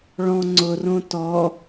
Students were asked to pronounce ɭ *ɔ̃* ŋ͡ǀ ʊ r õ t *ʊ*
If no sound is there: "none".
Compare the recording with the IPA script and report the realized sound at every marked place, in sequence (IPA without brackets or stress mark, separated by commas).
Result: ɔ̃, ɔ